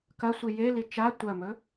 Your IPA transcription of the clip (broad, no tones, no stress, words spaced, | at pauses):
kɐsʷi jeli t͡ʃa tʷɐmɵ